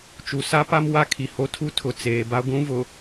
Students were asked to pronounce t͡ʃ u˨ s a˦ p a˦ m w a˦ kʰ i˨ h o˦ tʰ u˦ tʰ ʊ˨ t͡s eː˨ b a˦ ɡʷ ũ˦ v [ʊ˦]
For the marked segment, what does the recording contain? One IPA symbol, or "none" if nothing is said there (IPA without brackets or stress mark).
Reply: ʊ˨